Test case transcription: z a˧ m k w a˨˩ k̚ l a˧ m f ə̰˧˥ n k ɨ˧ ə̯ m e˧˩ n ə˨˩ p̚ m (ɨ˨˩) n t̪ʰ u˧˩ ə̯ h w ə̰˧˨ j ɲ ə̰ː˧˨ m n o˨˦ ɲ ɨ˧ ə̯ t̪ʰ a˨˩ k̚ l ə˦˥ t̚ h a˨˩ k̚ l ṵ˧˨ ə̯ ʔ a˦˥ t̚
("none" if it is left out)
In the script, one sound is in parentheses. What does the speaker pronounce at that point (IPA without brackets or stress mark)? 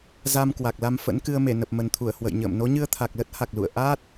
ə˨˩